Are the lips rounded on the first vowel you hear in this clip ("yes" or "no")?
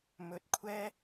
yes